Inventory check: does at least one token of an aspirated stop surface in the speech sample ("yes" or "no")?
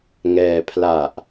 yes